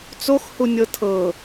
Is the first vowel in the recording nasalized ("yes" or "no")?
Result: no